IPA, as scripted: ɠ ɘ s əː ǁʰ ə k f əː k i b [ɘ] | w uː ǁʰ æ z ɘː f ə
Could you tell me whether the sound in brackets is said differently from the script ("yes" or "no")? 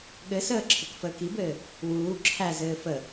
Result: yes